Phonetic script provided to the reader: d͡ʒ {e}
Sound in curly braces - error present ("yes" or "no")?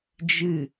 yes